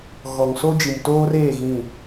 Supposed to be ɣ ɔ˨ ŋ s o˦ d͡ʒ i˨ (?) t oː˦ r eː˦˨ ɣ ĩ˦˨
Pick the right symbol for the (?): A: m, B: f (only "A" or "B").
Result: A